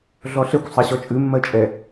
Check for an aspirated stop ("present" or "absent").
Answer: absent